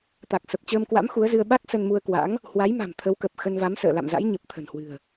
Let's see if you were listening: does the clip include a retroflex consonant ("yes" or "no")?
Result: no